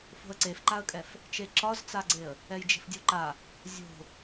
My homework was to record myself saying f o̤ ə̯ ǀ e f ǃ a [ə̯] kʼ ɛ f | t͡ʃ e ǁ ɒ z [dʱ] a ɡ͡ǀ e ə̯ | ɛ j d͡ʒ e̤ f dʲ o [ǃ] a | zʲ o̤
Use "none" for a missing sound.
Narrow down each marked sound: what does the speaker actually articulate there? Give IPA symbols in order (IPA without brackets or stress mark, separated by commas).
ə̯, t͡s, ǃ